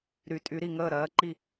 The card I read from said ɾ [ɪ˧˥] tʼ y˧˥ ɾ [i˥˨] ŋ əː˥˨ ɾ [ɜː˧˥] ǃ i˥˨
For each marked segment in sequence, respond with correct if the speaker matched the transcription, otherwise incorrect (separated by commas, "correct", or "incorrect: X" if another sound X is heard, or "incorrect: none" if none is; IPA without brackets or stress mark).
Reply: incorrect: y˧˥, correct, correct